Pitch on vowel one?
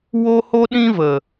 high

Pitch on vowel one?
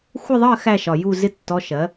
falling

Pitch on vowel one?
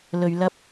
low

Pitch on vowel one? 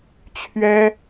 high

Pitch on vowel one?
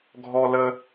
high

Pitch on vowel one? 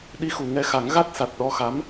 rising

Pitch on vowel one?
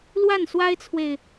falling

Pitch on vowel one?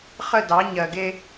falling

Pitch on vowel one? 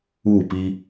falling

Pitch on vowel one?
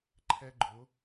high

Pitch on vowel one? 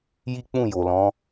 high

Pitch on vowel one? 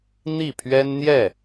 falling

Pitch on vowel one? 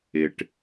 low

